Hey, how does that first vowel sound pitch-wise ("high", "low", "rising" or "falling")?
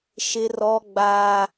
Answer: high